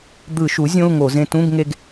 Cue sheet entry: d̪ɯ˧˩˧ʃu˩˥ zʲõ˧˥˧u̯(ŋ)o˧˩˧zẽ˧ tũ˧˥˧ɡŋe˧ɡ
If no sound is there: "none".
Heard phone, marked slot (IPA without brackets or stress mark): ŋ